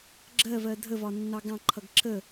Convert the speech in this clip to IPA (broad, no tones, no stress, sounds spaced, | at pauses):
ɡ͡ǁ ɜ v ɜ dʱ ə v ɒ nː ɑ ɡ ɑ̃ ǃʰ ʌ ɡ ǁ ə